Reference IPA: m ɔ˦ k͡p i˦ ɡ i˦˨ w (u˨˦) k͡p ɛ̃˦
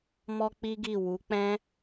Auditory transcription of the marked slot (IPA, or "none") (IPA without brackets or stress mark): u˨˦